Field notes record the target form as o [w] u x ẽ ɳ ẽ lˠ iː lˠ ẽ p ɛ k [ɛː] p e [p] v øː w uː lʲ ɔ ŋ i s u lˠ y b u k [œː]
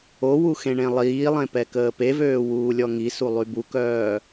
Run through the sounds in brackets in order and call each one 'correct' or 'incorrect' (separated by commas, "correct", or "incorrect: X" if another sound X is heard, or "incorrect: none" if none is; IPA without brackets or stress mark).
correct, incorrect: əː, incorrect: none, correct